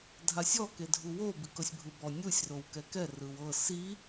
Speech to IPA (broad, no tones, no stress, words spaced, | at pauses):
dʱasʲɔ kedʱuwo bikɤsʲbʱɯbɔ nʲusʲ rowkɛkɛ rɯwɤ si